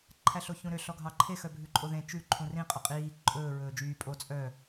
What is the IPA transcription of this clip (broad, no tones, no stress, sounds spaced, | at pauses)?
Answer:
ǃʰ æ ɬ o ç ũ ɾ ø ɬ ɔ ɡʱ ɑ ǃʰ e x œ bʱ ʉ ǃʼ o ð ẽ t͡ʃ ʉ ǃʰ ũ r ĩ qʼ œ qʼ iː ǃʼ ɵː ɹ ɵː d͡ʒ yː pʼ o t͡sʼ œ